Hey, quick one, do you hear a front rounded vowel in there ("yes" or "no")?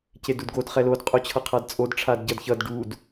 no